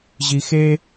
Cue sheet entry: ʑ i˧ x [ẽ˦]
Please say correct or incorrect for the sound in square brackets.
incorrect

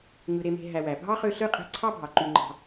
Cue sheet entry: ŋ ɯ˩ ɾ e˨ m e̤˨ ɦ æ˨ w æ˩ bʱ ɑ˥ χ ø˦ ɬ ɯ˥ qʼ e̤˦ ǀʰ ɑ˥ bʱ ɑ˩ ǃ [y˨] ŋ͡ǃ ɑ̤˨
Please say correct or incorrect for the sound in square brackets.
correct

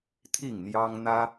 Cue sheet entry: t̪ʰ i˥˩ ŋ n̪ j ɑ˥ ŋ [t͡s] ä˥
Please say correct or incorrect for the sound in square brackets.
incorrect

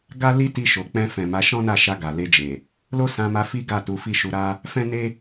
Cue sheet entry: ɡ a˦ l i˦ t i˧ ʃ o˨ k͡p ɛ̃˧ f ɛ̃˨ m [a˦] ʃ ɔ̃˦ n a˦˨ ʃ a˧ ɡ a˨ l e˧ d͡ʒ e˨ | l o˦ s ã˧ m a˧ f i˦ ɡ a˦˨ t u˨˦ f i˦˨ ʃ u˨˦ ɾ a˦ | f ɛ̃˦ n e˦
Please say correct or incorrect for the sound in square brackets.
incorrect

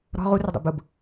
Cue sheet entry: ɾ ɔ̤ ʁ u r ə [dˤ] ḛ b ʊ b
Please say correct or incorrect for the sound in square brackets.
correct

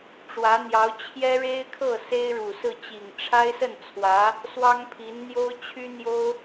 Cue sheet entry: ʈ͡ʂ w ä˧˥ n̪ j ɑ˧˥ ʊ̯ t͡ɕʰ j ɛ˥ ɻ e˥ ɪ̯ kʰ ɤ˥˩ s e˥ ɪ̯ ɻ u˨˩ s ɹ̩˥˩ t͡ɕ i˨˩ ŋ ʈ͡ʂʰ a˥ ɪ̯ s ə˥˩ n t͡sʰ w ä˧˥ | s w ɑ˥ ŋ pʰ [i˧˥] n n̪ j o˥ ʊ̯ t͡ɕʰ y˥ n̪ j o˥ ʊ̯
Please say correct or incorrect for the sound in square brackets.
correct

